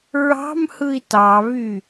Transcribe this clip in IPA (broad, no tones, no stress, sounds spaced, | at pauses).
ɹ ɑ̤ m h ɯ i̯ t ɑ β y